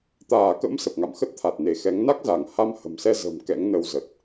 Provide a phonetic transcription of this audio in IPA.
t̪aː˧˩kə̰˧˥m sə˨˩p̚ŋa̰˧˨mxə˦˥t̚t̪ʰa˨˩t̚ ne˧˩xɛ˨˦ŋ na˦˥k̚za˧˩ŋ ha˧mhə̤˨˩msɛ˧zə̤˨˩m kɛ̰˧˥ŋnə˧wzə˨˩t̚

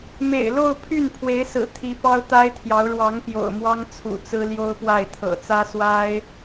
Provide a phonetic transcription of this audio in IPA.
mḛ˨˩ɪ̯lo˥˧ʊ̯pʰy˥˩npʰwe˧˥ɪ̯ sɹ̩˨˩t̪ʰi˧˥ pɑ˥ʊ̯t̪a˥ɪ̯t̪ʰjɑ˧˥ʊ̯ ɻwɑ˧˥ŋpjo̰˨˩ʊ̯mwɑ˥ŋ t͡sʰṵ˨˩t͡sɹ̩˥ljo˥ʊ̯pwa˥˩ɪ̯ t̪ʰɤ̰˨˩t͡sä˥ swa˥ɪ̯

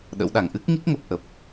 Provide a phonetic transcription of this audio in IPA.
ɗə̰˧˥wɗa˧˩ŋ ʔɨ˦˥k̚ŋi˦˥k̚ŋə˨˩p̚ ʔə˨˩p̚

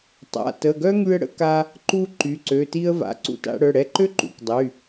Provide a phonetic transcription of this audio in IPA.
tˤa̰˩˧˩ tə˩˧˩ɡœ˥ ŋy˧ə̯ɽə̰˧ ka˧ | ǃu˧ ǃy˩˧˩ǀø˩˧˩ti˥ə̯ va̰˩˧˩ǀṵ˧ta̰˧ɽœ˩˧˩ ɽɛ˧ǃø˥ ǃṵ˩˧˩kdˤy˩˧˩

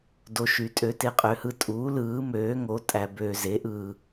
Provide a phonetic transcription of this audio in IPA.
do˨ʃy˩˥ tʼø˩˥te˩˥qʼø˩˥hɯ˨ tʼuː˩˥ lɯː˩˥møː˩˥ŋo˩˥ tʼæ˨bøː˨ze˩˥ʔɯː˨

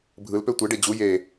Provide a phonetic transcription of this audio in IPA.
bʱɯlpø tʷeɖe d͡ʑu je

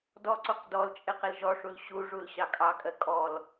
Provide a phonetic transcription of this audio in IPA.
dɔǀuq dɔl t͡ʃʼɪqɪlʒɔʂul ɕuʐul ɕɑkʼɑkʼɜ kʼɔl

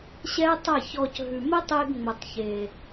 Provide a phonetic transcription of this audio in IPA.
ɕɛ˦tˤɐ˦˨çɔ˧c ɦʉ˨mə˦tˤe˧ɡ ŋ͡mə˨tˤçe˨

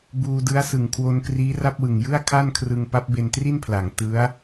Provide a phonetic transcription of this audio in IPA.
buː˧dɯ˦˥a̯sɯ˨˩ŋ kʰwo˧nkriː˦˥ra˥˩p̚wɯ˨˩ŋ jɯ˥˩a̯kʰa˥˩nkʰrɯ˧ŋ pa˦˥p̚be˧ntri˥˩npʰla˩˦ŋ tɯ˦˥a̯

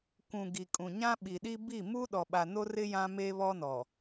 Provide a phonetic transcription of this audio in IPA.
kʷũ˨ ɡi˨kʼũ˨ ɲã˦ɓi˨ɗi˦ bi˦˨mu˦ ɗɔ˨ɓa˨no˦rɪ˦ jã˦me˦βɔ˦nɔ˨

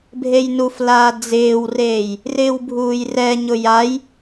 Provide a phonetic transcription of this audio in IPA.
bʱejnuflaː d͡zɪːwreːj | rɪːwbʱuːjrɛɲʊ jaj

